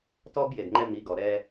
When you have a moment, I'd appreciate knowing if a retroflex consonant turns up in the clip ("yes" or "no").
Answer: no